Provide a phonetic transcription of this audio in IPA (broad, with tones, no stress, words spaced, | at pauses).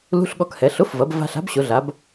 lṳ˧˥˧ɬɠɔ˧khɛ˩˧ ɬʊ˨˥fvɐ˩˧b va̤˧ɬa̤˨˥bɕʊ˩˧ɮa˩˧b